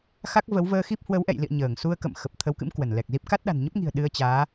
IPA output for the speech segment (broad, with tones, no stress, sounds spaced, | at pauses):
x a˦˥ k̚ v ə˨˦ w v əː˧ x i˦˥ p̚ h w ə˨˦ w ʔ ɛ̰˧˨ j l ḭ˧˨ ə̯ ɲ əː˧˩ ŋ s u˧ ə̯ k ə̰˧˨ m x ə˨˩ p̚ t̪ʰ ə˨˦ w k ɨ̰˧˥ m k w ə˧˩ n l ɛ˨˩ k̚ z i˦˥ p̚ k a˦˥ t̚ ɗ a̤˨˩ n ɲ ə˦˥ p̚ ŋ i̤˨˩ ə̯ ɗ ɨ˧ ə̯ t͡ɕ aː˨˦